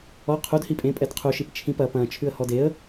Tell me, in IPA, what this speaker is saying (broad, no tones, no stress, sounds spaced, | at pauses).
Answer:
ɔ qʰ u d h i pʼ ẽ pʼ ɛ d qʰ u ʃ i p t͡ʃʰ ĩ p ɐ p ɐ̃ t͡ʃʰ ʉ ə̯ h ɔ d e ə̯